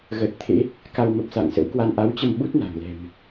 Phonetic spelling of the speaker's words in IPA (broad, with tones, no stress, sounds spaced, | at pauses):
ɣ əː˨˩ t̚ t̪ʰ ḛ˧˥ | k a˧ w m ə˨˩ p̚ s a̰˧˨ ŋ s ə̰˧˥ w k w a˧ n ʔ a˨˦ w t͡ɕ ə˧ m ɓ u˦˥ t̚ n a̤˨˩ ŋ l ɛ̤˨˩ m